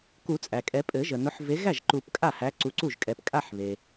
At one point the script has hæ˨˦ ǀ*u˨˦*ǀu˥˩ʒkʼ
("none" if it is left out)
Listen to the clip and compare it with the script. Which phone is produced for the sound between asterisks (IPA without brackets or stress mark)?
u˨˦